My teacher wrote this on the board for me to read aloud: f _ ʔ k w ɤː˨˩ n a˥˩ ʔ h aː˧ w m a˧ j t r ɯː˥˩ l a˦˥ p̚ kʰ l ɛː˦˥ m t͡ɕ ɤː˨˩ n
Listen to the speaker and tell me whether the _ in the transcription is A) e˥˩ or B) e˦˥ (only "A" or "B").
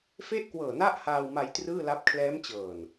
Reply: A